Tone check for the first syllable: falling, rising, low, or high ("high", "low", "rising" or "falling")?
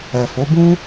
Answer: low